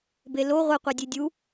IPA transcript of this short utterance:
belo ʁʷɘ qʷedʲedʲu

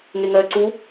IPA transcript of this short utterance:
ŋeŋɜːǀu

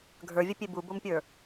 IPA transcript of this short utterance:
ɡʱə˞vʲəpʲe bubompʲə˞

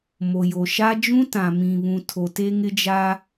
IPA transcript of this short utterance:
mo˨jo˨ʃa˦ d͡ʒũ˦tã˨mĩ˨βũ˨ tʰo˨te˦ŋɪ˦d͡ʒa˦

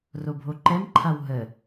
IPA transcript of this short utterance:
robʱoǃɛmǃʰaw ɦə

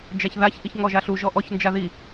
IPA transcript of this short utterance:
d͡ʒaçðaç ʔiçŋɔʒaɬu ʒɔʔɔç nd͡ʒaði

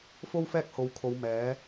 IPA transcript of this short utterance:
fo˥wfɛː˥k̚ ho˨˧wkʰo˨˧w mɛː˨˥

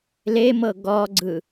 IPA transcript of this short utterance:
lemɤ ɡɔɡ͡ǀɯ

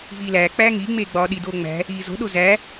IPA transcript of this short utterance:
viːlæː k͡pæːŋiː ŋ͡meːɡ͡bɒːɗi doːŋ͡mæ̤ | iːzo̤ɗo zæ

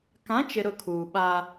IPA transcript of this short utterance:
kã˨˦t͡ʃɪ˨ ɾʊ˦˨kʰuː˨ɓa˦

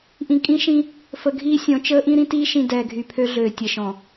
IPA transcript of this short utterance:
ʔĩ˨ kʼĩ˦ʃĩ˦ | fə˨ɡʱiː˦sʲɔ̃˨˦ t͡ʃəː˦ʔĩ˦ ɾĩ˦tiː˦ ʃĩ˨ dɛː˨ɡʱy˨pʰø˦ɮøː˨ tʲə˨˦ʃɔ̃˨

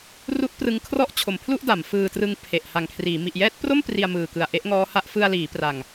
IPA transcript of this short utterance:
ru˦˥ʔprɯ˧ŋ kʰrɔ˥˩ʔt͡ɕʰo˩˦mpʰlu˥˩ʔ da˩˦m fɯː˧trɯ˧ŋ pʰe˨˩ʔ ha˨˩ŋkʰriː˩˦ mi˨˩ʔjɛː˦˥t̚pro˥˩m pri˧a̯mɯː˨˩kɯ˨˩a̯ ʔe˦˥ʔŋɔː˦˥ha˦˥ʔ fɯ˧a̯liː˩˦pra˨˩ŋ

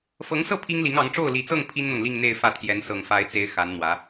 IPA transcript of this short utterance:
fɤ˧˥ŋsɤ˥˩ pʰi˥ŋli˧˥ŋɑ˧˥ŋ ʈ͡ʂo˥˩ʊ̯li˨˩t͡sɤ˥˩ŋ pʰi˥nn̪ɤ˨ŋ li˥˧ŋn̪e˥˧ɪ̯ fä˥˩t̪ʰjɛ˧˥n sɤ˨˩ŋfa˧˥ɪ̯t͡se˧˥ɪ̯ xa˧˥nn̪wä˧˥

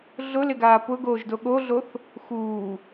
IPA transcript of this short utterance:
ɮʊlɪɡaː pʊɡoːʒdo ɠoɮoθ | xuː

